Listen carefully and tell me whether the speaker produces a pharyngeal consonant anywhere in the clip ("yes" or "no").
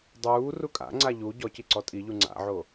yes